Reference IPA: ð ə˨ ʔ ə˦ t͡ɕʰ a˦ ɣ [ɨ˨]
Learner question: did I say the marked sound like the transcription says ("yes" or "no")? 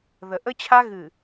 yes